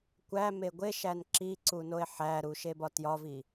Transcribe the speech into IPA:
kʷ æ m e ɡʷ e ʃ æ n ǁ i ǀ u n o e̯ ħ æ ɾ u ʃ e b ɒ t j ɒ v i

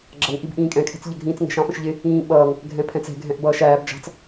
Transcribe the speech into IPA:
ɡ͡ǁ ʌ ŋ ʔ i b ʔ ĩː kʼ ɛ̃ kʰ ɛ̤ t͡s ʎ ə ɡʱ ĩː t͡s ŋ ɛ̤ ʃ ɑ̃ f ə̃ ʃ ʎ ɪ | ĩː ɓ ʌː ŋ | ɡʱ ɛ̃ pʰ ɛ̃ t͡s ɛ̤ ɡʱ ɛ̃ ʔ b ʌː ʃ æː b d͡ʒ ɑ̤ t͡s

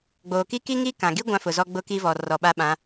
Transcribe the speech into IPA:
ɡ͡b oː˨ k i˦ k i˦ ŋ i˦ k ã˨ ɡ i˦ ɡʷ ã˦ f ʊ˨ z ɔ˦ ɡ͡b ʊ˦ k i˦ v ɔ˨ r ɔ˨ ɓ a˦ ɓ ã˨˦

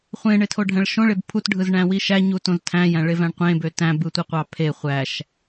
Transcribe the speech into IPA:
χʷ ẽ ɳ e tʰ o ɖʱ æ̃ ɭ ʃ õ ɭ e b pʰ u t ɖʱ ɯ z ɳ æ̃ w i ʃ æ ɲ u t õ z tʰ æ̃ j æ̃ ɭ e v æ̃ ɳ qʷ ẽ b ø t æ̃ b ɯ tʷ ɯ qʷ ɑ pʰ e χʷ æ ʃ

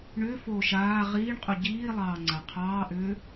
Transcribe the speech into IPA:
ɳ ʏː f oː ʃ aː ʁ iː ɳ qʼ u ɟ iː lˠ ɑː ŋ͡ǀ a qʰ ɑː ʔ ʏː

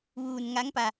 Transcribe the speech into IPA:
ʋ uː˧ n ŋ a˧˥ ŋ p a˧

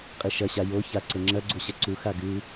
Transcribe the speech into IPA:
qʼ i ʃ ɐ ɕ a j o ç a ǀ ɘ ŋ͡ǁ ɐ ɡ͡ǀ u ɕ ɐ ǀ u x a ɡ ɨ

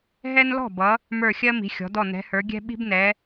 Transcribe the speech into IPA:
ɦ ɛ˦ n l ɔ̤˥˩ b ʌ˩˧ | m ə˞˧˩ xʲ ɜ˦ m i̤˩˧ xʲ ɔ̤˩˧ d ɔ˧˩ n ɛ̤˩˧ h ə˞˩˧ ɡʲ ɛ̤˦ ɓ i̤˦ b n ɛ˩˧

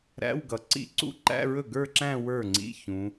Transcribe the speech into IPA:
ɾ æ̰˧˥˧ w ɡ ʌ˩ ǀ ḭ˦˥ ǀ ṵ˦˥ ǃ æ̰˧˥˧ ɹ ɵ˥˩ ɡ ə˞˥˧ ǁ æ̃˥˧ w ə˞˥˩ ŋ͡ǀ ḭ˧˥˧ ç ũ˩˧

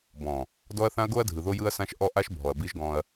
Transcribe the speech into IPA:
b ɔ̃˨ | d ɔ˦ ɐ̯ θ ã˦ ɐ̯ ɡ o˦ ɐ̯ dʱ ɯ˨ ð o˦ j ɯ˦ ɐ̯ s ã˦ ʃ ʔ ɔ˦ ʔ a˦ ʃ bʱ ɔ˨ ɐ̯ b i˦ ʒ ɡ ɔ̃˦ ɐ̯

